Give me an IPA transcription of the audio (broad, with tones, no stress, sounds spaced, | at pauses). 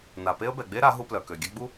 n a˨ p e˦ ə̯ b ɛ˨ ɡ͡b e˦ ɾ a˨˦ ɦ u˦ p l œ˨ k ø˨ ɡʲ ɛ˦ ɡ͡b u˦